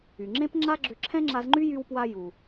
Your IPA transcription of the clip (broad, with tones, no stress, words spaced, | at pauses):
y˩ŋ͡ǁẽ˥pŋ͡ǁa˥ɡ͡ǁʏ˧ ǁʰɛ̃˥ŋ͡ǁa˧zŋ͡ǃy˥ jy˧wpwa˧ ju˩